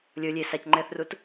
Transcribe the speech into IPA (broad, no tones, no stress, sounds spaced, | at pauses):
lʲ o lʲ e s a c ŋ͡ǃ ɛː θ r u t